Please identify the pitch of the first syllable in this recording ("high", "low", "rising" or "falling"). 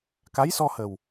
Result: rising